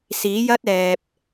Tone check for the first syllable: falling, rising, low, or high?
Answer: rising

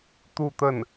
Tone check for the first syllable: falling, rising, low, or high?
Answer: falling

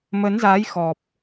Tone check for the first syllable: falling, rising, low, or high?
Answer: rising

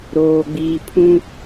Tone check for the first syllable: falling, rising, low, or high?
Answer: low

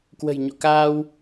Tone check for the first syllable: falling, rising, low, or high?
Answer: low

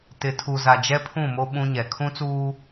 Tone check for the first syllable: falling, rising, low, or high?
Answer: low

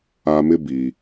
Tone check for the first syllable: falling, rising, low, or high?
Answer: high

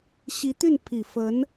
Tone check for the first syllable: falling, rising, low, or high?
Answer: rising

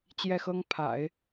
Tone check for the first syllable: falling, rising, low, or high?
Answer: falling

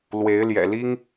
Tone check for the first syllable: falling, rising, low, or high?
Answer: rising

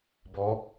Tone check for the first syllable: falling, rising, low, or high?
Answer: rising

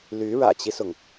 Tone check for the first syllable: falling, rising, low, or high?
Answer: rising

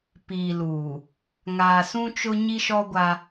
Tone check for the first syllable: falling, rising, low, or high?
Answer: low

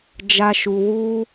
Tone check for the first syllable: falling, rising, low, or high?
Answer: high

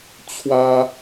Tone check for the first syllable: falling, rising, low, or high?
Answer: high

